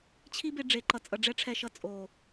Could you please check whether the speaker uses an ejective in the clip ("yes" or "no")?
yes